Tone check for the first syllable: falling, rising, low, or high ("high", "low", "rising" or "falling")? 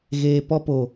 low